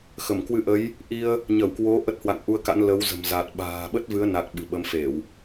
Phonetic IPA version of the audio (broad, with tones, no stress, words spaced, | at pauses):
xə˧˩mkwɨ˧ʔə˨˦j | ʔi˧ə̯ | ɲə˧˩wkwo˨˦ ʔə˦˥t̚hwa̰˧˨ŋʔu˧ə̯ka̰˧˥n lə˨˦wzə̤˨˩m za˨˩t̚ ɓa̤ː˨˩ɓə˦˥t̚vɨ˨˦ə̯na˨˩k̚ ɓɨ̤˨˩ɓə˨˦mfe˧˩˨w